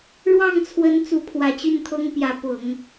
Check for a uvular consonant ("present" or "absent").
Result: absent